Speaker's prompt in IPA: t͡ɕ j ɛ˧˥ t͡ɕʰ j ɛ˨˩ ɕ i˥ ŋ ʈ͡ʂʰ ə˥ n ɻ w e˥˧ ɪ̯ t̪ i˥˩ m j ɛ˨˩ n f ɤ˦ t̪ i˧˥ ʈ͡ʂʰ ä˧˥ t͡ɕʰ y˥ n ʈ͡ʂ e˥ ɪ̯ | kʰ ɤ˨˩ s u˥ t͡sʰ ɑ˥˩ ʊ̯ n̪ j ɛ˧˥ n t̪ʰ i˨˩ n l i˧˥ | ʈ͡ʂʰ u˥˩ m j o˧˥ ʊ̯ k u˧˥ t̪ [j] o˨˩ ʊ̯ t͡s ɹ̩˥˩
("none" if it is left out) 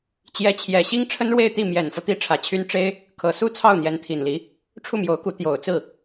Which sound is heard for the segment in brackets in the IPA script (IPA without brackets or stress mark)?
j